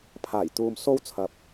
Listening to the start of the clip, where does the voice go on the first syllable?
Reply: low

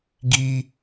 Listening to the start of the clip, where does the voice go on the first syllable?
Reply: high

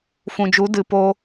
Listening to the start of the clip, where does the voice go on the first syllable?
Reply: low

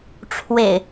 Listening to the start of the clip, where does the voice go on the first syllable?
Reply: low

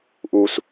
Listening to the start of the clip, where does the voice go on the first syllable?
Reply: low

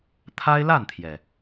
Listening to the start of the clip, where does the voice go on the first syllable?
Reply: high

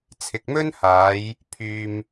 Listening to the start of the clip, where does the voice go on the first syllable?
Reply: low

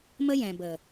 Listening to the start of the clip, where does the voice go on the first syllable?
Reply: high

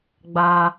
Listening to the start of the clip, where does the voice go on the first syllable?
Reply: high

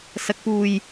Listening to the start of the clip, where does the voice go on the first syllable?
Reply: low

